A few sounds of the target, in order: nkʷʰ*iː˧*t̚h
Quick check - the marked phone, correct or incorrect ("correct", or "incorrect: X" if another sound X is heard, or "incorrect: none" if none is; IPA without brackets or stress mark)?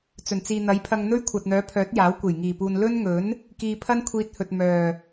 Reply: correct